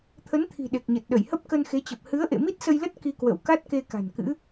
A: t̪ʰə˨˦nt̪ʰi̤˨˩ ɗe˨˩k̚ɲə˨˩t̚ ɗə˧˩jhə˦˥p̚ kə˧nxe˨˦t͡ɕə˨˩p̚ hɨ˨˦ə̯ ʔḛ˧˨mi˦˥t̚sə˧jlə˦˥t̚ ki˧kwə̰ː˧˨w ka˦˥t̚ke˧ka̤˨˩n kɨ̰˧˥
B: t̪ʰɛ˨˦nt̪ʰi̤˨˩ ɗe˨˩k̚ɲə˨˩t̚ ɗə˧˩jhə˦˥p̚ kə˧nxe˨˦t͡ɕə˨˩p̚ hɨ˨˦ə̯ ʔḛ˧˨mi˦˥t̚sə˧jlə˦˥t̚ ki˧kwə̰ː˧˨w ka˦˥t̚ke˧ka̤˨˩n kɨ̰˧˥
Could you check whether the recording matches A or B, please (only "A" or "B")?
A